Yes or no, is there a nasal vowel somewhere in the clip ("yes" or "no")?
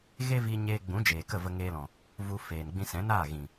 yes